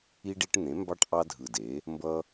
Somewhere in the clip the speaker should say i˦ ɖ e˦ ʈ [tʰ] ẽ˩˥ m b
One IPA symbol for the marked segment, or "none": n̪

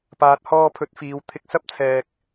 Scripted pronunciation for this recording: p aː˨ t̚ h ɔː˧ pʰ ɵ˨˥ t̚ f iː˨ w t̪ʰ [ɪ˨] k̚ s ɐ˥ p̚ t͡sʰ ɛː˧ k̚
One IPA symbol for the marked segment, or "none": ɪ˧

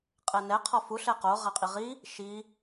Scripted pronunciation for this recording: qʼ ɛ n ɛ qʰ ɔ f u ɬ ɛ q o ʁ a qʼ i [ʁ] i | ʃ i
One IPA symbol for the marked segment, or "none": ʁ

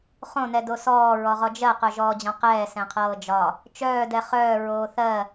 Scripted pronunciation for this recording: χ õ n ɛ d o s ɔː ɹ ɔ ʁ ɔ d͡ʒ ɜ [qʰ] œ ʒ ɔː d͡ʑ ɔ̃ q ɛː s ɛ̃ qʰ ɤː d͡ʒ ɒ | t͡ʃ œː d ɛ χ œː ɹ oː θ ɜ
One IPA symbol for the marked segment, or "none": q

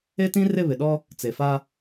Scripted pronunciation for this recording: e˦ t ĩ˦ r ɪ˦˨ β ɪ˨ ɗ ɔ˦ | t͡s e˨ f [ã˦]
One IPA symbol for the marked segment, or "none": a˦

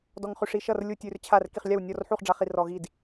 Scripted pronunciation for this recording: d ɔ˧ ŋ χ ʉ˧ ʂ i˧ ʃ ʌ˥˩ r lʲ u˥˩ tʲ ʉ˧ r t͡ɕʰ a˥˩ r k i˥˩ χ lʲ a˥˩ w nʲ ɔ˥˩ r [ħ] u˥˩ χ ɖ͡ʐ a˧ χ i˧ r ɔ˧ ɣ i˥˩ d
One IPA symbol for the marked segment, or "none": ħ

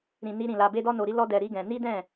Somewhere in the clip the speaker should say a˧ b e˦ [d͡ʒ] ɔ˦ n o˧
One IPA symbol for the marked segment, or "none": d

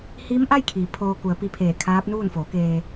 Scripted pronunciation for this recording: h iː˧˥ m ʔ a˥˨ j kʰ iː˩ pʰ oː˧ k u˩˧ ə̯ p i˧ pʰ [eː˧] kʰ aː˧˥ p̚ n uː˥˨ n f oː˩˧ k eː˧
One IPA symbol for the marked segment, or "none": eː˧˩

